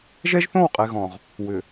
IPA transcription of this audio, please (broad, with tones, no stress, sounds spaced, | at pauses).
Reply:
ʒ ɛ˦ ʒ θ õ˦˨ w qʼ ɛ˨ ɣ ɔ̃˨ ʁ | w ʏ˨